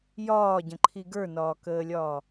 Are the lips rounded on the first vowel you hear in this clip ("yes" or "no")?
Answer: yes